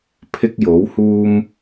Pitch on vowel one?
high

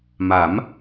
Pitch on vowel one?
rising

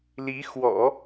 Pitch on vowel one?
rising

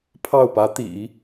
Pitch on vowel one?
falling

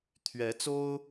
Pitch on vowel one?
rising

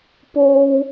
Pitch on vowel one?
high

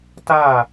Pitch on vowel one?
falling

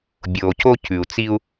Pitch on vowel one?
low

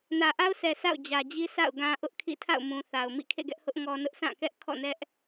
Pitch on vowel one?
low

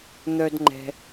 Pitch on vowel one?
high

